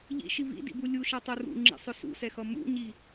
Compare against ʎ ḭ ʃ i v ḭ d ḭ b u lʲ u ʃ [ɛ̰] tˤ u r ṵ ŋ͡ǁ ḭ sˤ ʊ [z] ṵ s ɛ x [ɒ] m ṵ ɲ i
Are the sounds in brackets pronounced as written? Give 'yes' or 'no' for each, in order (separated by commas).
no, no, no